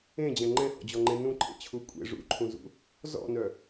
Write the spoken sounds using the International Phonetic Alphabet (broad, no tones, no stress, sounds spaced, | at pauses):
ẽ d͡ʑ ɛ̃ ŋ͡ǃ ɛ̃ h ɔ̰ d͡ʑ ɔ ŋ͡ǃ ẽ n ũ ǃʰ ḛ t͡ɕʰ u kʷʼ ḛ ʐ ṵ ǃʰ ũ z ṵ | z ɔ̰ n œ